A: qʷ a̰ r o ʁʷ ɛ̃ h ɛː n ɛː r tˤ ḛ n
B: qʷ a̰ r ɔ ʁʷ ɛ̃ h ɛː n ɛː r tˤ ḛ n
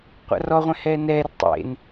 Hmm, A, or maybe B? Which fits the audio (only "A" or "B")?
B